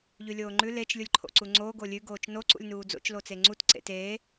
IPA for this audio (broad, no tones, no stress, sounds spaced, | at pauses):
ʎ ʉ lʲ oː ŋ͡ǃ ʉ l e t͡ʃ lʲ u lʲ ǃʰ o̰ ǀ u ŋ͡ǀ oː ɡ o lʲ ʉ ɡ oː t͡ʃ n o ǀ ṵ lʲ n uː d͡z o̰ t͡ʃ l o t͡s e ŋ͡ǀ u t ǀ ḛ t eː